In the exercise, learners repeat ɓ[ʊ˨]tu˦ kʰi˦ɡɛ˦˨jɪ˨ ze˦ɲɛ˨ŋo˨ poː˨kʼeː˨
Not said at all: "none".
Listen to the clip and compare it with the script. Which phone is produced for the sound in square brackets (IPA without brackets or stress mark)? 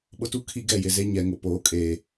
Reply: ʊ˦